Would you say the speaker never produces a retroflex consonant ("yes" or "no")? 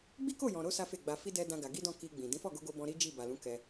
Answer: yes